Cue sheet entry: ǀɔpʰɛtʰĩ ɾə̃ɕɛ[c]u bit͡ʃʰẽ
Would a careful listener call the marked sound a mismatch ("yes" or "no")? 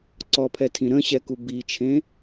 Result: yes